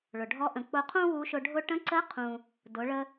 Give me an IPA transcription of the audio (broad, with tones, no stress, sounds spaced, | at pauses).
ɭ ʊ˩ ɖʱ ɔ˧˥ ʔ ə̃˩˧ k͡p ʊ˧ qʰ ũ˥ w u˧˥ ʃ ʊ˧ ɖʱ ʊ˧ ʈ ə̃˧˥ ǀ ə˧˥ qʰ ũ˩ | d ʊ˩˧ ɭ ə˧